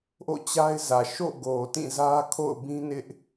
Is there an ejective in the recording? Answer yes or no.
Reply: no